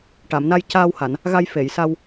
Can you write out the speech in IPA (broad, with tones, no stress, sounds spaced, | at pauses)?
ʈ a˨˩˨ m n a˧ j c aː˧ w h a˨˩˨ n | ɣ a˧ j f e˨˩˨ j s a˧ w